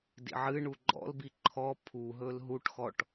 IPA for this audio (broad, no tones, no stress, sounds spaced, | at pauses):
d ḭ ʕ ɨ ɳ u ɡ͡ǃ ɔ̰ l b i ǃʰ ɔ pʰ u ɦ ɵ l ɦ u ʈ x ɔ ʈ